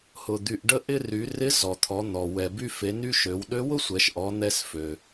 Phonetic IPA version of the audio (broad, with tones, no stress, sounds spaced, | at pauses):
h ʊ˩ d̪ y˩ ʔ ɖ ə˧ ʔ ɪ˧ r y˩˧ r ɪ˧˥ z ɔ˩ t̪ʰ ɔ˩˧ n̪ ɔ˩ w ɛ˩ b y˧ f e˩˧ n y˧ ʃ ø˩˧ w ɗ ø˧˥ w ʊ˥ sʷ ɛ˩˧ ʃ ʔ ɔ˩˧ n̪ ɛ˧ s f ø˩